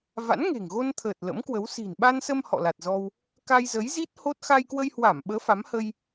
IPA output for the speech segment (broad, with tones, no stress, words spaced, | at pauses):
va̰˧˥nŋe̤˨˩ŋɣo˧nt̪ʰəː˨˩t̚ lə̰˧˥mkwə˨˦w si̤˨˩nɓa˧nsə˧m hɔ̰˧˨la˨˩t̚zɔ˧w | ka˧jzə˨˦jzi˦˥t̚ ho˦˥t̚ xa˧jkwə˧jhwa˧˩mɓəː˨˦ fa˨˦mhə˧j